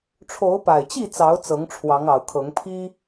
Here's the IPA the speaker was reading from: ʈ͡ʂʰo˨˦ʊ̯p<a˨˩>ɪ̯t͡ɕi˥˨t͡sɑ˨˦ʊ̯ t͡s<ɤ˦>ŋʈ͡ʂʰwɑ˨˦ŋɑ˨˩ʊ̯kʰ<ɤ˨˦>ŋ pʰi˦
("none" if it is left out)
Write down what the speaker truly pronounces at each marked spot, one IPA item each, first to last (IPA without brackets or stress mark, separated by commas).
a˨˩, ɤ˨˦, ɤ˨˦